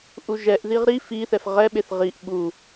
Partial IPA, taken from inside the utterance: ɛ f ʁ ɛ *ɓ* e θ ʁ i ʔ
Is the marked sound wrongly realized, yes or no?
no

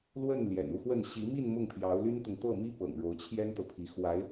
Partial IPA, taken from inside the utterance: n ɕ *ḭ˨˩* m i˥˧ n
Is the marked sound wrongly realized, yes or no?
yes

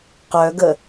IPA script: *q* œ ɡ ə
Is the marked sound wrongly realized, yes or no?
no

